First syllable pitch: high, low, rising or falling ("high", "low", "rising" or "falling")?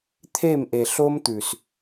falling